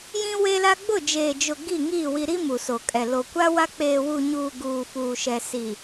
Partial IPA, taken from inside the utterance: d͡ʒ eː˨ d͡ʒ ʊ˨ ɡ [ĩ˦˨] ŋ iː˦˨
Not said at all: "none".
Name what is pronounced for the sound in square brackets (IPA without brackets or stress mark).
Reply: i˦˨